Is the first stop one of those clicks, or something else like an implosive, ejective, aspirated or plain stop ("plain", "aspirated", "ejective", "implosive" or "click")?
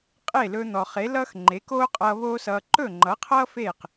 ejective